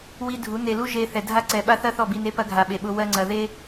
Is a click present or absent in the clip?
present